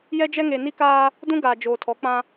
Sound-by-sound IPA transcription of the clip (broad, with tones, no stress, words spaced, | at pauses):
jɛ˦d͡ʒɛ˦ŋe˨ ni˦kaː˦ | dũ˦ɡaː˨ d͡ʒoː˨tʰɔ˨˦ k͡pã˦